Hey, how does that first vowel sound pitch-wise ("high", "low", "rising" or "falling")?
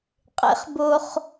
rising